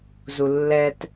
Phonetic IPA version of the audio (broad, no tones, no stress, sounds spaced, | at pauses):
z u lː ɛ t